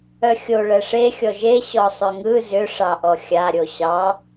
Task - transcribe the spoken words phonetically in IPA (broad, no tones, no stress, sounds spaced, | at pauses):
œ xʲ o ɭ ɛ ʂ e xʲ ɔ ʒ e ɕ ɔ sˤ ʏ ŋ ɯ z ʏ ʂ ɑ ʔ ɔ xʲ a ɾʲ o ɕ ɑ